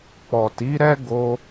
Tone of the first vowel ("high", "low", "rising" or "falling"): low